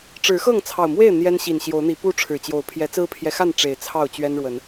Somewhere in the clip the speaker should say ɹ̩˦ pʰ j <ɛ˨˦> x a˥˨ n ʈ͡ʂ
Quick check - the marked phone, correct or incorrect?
correct